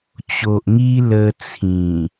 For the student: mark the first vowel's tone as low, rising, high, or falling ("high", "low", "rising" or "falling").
low